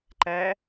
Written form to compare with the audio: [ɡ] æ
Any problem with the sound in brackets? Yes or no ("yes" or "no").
yes